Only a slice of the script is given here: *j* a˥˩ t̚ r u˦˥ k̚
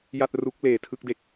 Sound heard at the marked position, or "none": j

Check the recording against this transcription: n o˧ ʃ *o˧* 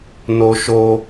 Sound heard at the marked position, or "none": o˧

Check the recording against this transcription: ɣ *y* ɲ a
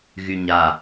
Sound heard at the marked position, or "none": y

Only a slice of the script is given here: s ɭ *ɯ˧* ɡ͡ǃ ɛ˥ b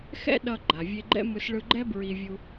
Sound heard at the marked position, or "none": ɯ˧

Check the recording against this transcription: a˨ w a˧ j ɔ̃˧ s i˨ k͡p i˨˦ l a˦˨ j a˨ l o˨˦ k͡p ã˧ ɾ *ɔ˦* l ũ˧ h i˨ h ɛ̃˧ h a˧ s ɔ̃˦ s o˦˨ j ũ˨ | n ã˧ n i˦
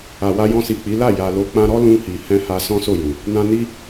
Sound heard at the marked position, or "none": ɔ˦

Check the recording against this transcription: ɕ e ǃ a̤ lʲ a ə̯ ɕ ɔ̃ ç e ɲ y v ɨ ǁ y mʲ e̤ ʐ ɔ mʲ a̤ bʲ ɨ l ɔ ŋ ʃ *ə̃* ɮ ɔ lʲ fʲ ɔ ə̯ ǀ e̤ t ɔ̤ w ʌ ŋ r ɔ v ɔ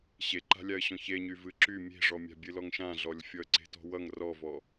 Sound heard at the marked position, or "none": ã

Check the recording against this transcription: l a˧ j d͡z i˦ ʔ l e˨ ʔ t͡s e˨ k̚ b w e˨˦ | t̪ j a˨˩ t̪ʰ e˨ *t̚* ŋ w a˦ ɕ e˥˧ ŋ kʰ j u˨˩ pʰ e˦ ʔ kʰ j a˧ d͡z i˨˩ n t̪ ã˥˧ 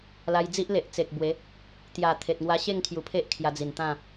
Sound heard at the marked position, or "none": t̚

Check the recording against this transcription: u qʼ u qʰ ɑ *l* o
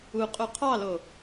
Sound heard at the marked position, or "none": l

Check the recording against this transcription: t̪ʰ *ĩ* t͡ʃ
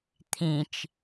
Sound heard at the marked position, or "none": ĩ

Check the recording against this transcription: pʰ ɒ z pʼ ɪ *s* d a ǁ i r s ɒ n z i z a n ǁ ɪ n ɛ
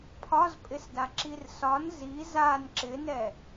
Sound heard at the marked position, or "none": s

